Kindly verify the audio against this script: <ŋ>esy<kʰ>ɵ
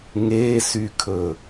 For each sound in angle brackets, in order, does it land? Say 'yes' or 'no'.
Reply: yes, yes

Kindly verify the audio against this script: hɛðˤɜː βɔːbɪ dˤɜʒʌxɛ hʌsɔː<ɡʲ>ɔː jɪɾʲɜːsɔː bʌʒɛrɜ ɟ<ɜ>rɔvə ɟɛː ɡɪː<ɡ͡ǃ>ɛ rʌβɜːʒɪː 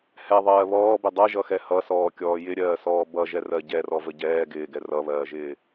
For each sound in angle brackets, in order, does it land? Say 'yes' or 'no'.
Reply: no, no, no

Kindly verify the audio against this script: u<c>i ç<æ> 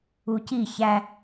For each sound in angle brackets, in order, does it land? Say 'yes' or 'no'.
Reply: yes, yes

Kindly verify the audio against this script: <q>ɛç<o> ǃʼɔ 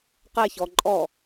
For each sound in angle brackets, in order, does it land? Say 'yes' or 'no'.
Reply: yes, no

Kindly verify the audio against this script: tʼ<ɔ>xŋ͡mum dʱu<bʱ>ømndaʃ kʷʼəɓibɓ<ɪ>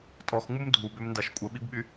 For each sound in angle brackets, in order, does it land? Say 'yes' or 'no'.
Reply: yes, no, no

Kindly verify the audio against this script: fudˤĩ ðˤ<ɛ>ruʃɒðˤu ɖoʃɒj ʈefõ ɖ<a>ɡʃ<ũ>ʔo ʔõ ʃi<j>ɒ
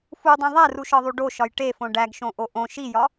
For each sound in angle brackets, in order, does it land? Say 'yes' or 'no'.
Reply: no, no, no, yes

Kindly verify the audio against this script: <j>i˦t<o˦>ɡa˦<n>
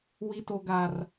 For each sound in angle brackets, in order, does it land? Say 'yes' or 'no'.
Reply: no, yes, no

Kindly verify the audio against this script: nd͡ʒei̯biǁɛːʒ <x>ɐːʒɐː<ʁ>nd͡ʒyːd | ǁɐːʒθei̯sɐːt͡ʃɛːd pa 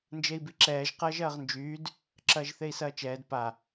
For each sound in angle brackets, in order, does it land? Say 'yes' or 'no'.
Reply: no, yes

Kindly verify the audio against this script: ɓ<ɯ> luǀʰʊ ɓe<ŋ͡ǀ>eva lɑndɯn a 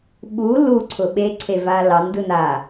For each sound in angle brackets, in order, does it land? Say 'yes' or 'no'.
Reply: no, no

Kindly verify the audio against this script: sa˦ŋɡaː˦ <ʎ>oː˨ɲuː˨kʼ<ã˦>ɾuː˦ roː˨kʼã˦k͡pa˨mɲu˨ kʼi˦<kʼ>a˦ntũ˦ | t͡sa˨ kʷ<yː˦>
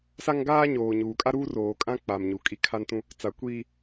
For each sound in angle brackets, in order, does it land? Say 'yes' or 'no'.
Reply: no, no, no, no

